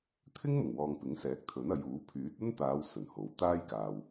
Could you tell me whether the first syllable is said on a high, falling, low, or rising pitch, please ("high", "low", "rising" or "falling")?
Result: high